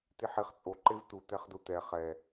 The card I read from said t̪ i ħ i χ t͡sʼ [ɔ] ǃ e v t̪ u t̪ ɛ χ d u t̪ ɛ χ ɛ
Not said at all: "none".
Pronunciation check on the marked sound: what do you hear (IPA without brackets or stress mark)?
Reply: o